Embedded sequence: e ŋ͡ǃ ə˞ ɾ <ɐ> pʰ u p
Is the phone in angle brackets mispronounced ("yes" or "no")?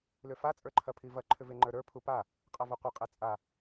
yes